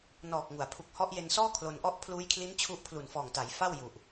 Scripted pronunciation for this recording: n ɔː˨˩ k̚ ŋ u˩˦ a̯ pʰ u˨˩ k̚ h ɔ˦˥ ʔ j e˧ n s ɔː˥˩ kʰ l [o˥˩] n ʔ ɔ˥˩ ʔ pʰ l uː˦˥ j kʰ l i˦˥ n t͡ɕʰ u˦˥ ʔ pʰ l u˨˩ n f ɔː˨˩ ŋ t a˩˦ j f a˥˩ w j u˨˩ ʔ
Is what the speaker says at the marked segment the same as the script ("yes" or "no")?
no